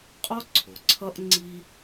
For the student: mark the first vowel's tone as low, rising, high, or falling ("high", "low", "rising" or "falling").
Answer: high